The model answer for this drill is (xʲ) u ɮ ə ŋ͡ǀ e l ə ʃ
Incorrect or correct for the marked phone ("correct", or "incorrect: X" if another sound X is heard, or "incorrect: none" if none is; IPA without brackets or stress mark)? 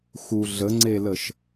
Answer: incorrect: x